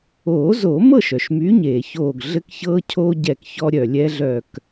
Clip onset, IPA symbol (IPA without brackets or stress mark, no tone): oː